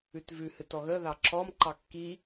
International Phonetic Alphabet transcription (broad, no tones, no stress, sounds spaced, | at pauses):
ʉ t v ʉ h ɨ t ɔ ɣ ə ð ɑ ǁ ɔ m ǃ ɑ kː i